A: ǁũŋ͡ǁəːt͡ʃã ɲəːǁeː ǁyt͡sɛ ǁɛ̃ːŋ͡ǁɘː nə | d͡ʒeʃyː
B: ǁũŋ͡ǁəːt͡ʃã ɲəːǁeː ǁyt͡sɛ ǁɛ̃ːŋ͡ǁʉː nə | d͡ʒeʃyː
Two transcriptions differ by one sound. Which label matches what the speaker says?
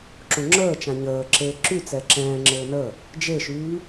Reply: A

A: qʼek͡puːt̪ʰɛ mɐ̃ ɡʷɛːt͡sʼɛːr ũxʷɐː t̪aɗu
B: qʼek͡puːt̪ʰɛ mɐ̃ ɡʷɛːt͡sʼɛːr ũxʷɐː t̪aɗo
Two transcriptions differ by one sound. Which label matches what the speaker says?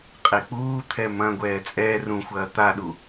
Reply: A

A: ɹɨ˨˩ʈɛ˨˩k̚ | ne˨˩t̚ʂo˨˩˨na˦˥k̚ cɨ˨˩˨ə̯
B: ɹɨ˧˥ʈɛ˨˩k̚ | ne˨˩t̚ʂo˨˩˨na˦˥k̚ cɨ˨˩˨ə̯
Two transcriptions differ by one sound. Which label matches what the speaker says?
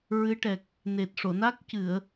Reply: B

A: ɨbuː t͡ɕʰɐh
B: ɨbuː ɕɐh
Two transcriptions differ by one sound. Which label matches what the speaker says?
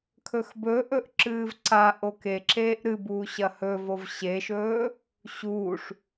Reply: B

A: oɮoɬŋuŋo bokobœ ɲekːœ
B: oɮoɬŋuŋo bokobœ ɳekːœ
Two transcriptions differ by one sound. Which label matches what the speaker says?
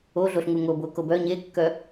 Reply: A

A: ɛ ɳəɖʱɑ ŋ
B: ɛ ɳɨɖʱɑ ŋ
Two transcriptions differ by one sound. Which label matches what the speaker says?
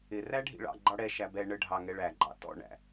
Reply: A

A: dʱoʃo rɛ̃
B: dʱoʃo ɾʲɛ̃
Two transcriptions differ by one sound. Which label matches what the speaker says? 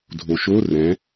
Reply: A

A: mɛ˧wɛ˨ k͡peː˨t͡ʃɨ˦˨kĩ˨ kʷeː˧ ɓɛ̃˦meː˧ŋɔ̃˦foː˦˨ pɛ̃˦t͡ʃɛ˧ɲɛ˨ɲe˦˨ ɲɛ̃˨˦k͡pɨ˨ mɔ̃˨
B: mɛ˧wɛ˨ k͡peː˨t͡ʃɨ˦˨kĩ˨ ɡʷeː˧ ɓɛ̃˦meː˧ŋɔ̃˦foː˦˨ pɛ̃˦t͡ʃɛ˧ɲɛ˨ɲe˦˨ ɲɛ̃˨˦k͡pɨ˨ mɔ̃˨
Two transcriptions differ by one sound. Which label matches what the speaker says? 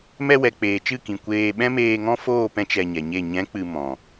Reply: A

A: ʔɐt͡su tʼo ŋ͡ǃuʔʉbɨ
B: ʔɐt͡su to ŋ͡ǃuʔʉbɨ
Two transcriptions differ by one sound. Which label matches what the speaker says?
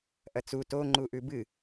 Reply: B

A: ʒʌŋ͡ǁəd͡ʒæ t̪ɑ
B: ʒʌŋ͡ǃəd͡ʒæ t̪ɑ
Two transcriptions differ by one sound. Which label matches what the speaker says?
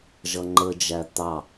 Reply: B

